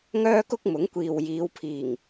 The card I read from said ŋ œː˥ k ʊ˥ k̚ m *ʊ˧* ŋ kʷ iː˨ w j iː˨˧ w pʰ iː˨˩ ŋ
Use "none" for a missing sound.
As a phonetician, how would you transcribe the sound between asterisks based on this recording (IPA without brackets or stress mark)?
ʊ˨˥